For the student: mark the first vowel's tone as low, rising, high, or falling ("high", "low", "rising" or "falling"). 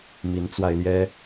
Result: rising